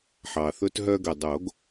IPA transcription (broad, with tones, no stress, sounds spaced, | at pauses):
ħ ɑ˩ θ ɵ˧ t ɦ œ˧ ɡ ɵ˩ dˤ o˨˩˦ ɡ